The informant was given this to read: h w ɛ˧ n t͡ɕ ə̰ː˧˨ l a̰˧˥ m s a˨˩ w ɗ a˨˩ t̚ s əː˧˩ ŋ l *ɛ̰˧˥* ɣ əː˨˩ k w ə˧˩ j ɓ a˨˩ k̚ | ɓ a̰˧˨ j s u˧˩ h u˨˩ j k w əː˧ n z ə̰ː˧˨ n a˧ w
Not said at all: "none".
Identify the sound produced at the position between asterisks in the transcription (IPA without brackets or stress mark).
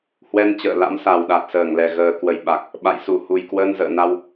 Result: ɛ˧˩